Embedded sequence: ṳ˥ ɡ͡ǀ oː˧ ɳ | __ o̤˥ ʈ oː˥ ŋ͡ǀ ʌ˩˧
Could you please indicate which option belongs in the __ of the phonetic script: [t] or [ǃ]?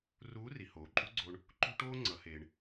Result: ǃ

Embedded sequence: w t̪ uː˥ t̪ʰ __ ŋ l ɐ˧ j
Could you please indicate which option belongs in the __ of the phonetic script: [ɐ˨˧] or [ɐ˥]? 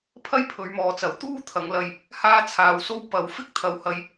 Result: ɐ˨˧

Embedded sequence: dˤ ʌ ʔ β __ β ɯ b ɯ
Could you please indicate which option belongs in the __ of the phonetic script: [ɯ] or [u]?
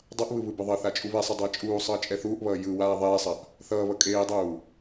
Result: ɯ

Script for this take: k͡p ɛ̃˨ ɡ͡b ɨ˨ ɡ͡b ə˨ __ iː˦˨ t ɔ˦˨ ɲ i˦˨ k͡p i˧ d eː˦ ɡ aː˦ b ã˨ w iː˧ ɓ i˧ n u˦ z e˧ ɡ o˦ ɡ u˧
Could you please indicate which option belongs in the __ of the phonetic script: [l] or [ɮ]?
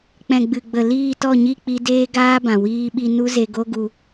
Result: l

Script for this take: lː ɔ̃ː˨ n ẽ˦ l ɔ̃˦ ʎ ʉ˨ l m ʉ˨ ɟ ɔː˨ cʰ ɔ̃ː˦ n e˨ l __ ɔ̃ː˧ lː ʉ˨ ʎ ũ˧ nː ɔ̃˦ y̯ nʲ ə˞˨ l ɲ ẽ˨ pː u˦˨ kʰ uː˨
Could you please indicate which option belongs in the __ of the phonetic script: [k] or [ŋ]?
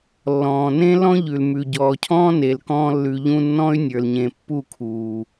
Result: k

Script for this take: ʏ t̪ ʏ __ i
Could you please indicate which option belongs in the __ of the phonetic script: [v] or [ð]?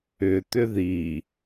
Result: ð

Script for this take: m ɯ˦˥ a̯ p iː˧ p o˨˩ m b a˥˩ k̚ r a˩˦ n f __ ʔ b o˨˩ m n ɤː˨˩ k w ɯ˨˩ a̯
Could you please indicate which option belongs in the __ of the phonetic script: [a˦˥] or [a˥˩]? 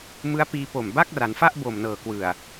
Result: a˥˩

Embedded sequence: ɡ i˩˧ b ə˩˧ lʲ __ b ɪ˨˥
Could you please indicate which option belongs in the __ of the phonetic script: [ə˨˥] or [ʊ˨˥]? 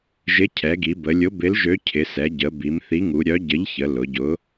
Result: ʊ˨˥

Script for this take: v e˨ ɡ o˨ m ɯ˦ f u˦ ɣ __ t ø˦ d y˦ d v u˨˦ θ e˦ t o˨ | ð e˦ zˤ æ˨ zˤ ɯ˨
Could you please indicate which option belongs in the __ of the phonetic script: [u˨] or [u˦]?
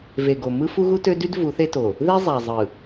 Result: u˦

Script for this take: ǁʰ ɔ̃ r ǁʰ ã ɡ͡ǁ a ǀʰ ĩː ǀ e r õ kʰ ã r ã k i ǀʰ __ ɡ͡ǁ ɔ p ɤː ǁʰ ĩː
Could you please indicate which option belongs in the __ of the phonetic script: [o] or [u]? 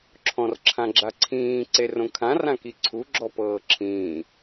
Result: u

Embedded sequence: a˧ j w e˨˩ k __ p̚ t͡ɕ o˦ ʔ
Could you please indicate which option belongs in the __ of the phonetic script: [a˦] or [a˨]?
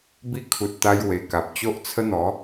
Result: a˨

